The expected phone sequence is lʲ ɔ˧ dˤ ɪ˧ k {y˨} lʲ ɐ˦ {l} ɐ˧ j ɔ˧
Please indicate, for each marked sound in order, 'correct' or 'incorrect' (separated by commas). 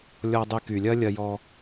correct, incorrect